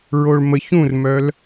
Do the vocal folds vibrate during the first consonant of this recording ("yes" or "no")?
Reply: yes